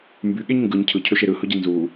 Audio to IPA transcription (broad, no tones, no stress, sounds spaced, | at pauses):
m b y ɠ e ɲ ŋ ɡ ɯ ɲ cʰ ɯ cʰ ø ʃ e ɾ ɯ h ɯ ɟ i n z u